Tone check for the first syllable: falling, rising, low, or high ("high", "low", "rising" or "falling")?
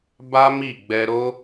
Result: high